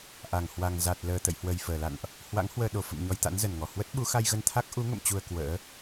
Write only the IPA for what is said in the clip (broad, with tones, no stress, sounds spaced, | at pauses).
ʔ a˧˩ ŋ h w a˨˩ ŋ z a˨˩ t̚ l əː˨˩ t̪ ə̰˧˨ j h w ə˨˩ j f əː˧˩ l a̰˧˨ n ʔ | h w a̰˧˥ ŋ h w əː˧ ɗ o˨˩ f ə̰˧˨ m ɲ ɔ˧ j t̪ a̰˧˥ n z ə˧˩ n ŋ ɔ˧˩ h w ə˦˥ t̚ ɓ u˨˦ x a˧ j ɣ ə˧ n t̪ʰ a˦˥ k̚ ʔ u˨˦ ŋ ə̰˧˨ m t͡ɕ u˨˩ ə̯ k w ə̰ː˧˥